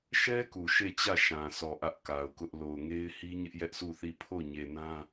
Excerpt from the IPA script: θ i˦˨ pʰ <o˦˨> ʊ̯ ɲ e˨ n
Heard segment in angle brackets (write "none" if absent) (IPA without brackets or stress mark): o˦˨